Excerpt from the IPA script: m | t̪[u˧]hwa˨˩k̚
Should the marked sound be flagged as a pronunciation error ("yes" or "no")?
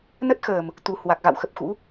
yes